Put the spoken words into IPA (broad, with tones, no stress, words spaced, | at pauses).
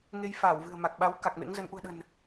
ŋe˧jfaː˧˩wvɨ̤˨˩ə̯ ma˨˩k̚ɓa˨˦w ka˨˩k̚mḛ˧˥ŋzə˨˦n ʔṳ˨˩ə̯ɗə̤˨˩n